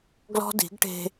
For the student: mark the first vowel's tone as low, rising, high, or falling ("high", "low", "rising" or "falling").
high